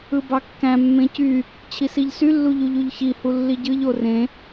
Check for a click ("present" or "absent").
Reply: absent